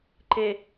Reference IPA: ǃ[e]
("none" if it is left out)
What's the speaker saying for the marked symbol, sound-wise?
e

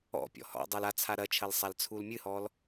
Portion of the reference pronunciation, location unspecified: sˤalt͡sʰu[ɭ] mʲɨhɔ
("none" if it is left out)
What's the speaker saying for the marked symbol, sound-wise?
l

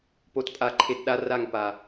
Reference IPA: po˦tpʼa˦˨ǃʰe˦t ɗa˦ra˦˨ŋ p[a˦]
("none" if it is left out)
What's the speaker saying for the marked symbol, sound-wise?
a˨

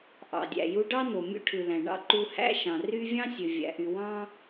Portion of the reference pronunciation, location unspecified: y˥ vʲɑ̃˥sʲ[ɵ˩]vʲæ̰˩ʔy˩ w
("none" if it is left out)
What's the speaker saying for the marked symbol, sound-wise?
ø˩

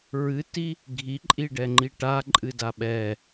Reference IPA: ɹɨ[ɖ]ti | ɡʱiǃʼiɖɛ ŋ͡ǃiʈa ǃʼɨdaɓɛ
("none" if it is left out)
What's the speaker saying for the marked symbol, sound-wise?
none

